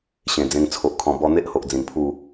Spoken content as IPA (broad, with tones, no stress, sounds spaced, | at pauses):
ɕ ẽ˨˩ d͡z ẽ˧ ŋ t͡sʰ o˨ ʔ kʰ ɔ̃˨˩ b ɔ˧ n̪ e˦ ʔ h o˨ ʔ d͡z ĩ˨˩ n pʰ u˥˧